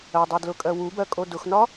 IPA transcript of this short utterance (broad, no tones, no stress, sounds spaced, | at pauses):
ɜ dˤ ɜ d l ʊ kʼ ɜ w u b ɜ kʼ o d ʊ x n ɒ